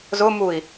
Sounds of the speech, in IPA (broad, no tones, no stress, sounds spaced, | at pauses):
z ʊ m u i̯